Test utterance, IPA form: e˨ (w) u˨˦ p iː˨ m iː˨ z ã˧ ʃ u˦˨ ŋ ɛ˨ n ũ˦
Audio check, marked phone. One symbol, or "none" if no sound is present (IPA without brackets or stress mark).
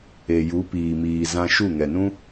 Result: j